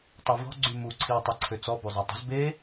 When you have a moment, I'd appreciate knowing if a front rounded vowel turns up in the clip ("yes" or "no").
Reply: yes